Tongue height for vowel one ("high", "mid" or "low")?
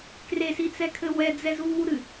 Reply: mid